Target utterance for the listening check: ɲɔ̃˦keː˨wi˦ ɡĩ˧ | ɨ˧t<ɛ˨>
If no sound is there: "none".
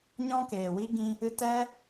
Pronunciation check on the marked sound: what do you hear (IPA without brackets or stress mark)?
ɛ˦